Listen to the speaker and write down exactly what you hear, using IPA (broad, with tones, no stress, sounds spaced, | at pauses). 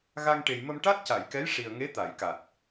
ɣ a˧ ŋ ʈ e˨˩ j m ə˧ m ʈ a˦˥ t̚ c a˨˩˨ j k ɛ˧˥ j ʂ i˨˩ ə̯ ŋ e˧˥ t̪ a˨˩˨ j k a˨˩ t̚